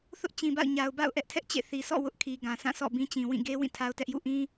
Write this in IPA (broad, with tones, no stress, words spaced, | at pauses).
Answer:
θʊ˦ʔ t͡ɕĩ˨ba̰˦˨ʊ̯ ɲa˨ʊ̯ba̰˦˨ʊ̯ ʔɛ˦ʔtʰɛ˦ʔ t͡ɕḛ˦˨θi˨ sʰɔ̰˦˨ wʊ˦ʔkʰi˨ ɡã˨sʰã˦˨sʰɔ̰˦˨ bĩ˦t͡ɕĩ˨ wĩ˦˨ ɡe˦ wĩ˦˨tʰa˦ʊ̯tɛ˦ʔjṵ˦˨ ʔĩ˦